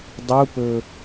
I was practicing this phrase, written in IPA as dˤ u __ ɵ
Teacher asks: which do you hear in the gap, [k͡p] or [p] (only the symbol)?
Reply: p